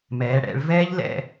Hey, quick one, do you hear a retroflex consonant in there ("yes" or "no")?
yes